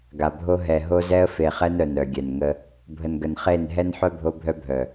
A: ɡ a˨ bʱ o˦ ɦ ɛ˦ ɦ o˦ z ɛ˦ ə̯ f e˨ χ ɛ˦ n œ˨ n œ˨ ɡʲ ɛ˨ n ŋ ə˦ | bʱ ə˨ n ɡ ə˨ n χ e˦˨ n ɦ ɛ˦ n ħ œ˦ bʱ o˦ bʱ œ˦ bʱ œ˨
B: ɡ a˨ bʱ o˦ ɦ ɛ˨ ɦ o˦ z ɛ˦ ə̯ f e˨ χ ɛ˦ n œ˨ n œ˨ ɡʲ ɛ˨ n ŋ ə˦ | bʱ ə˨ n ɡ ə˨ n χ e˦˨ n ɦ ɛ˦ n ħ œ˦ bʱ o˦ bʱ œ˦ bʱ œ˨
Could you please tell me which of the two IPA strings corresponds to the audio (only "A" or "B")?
B